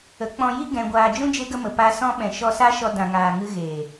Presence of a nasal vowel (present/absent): present